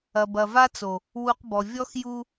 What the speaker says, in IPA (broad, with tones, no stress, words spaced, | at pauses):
ɐ˨bɐ˨va˦t͡so˨ | wu˨q bɔ˨ vʲɔ˦xju˦